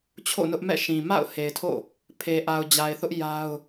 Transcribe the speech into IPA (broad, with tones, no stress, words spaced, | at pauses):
t͡ɕʰo̰˦˨ nʊ˦ʔmɛ̰˦˨ʃĩ˨ ma̰˦˨ʊ̯ he˨ɪ̯tʰo̰˦˨ | pʰe˨ʔa˨ʊ̯d͡ʑa˨ɪ̯θʊ˦ʔ ja˦ʊ̯